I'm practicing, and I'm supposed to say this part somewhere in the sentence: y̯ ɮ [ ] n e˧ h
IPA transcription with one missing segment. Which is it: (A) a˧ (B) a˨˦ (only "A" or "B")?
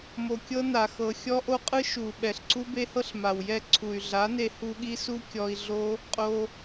B